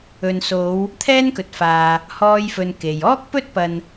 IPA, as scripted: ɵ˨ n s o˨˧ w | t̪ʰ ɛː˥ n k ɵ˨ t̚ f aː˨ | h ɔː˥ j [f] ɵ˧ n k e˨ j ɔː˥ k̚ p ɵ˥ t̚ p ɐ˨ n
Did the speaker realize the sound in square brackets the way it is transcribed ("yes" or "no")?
yes